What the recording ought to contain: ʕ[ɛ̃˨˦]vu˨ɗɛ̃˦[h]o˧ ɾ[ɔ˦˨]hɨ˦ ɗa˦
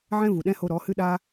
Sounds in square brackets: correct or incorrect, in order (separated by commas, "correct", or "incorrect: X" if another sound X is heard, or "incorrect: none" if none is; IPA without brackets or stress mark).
incorrect: ɛ̃˦, correct, incorrect: ɔ˨˦